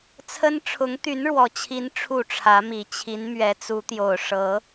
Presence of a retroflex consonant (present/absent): present